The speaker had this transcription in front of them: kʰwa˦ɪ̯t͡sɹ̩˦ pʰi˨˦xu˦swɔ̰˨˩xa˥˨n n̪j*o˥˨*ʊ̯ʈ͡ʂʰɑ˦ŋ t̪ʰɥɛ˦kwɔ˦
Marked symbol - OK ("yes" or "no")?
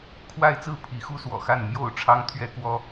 yes